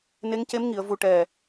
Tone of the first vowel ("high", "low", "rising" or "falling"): rising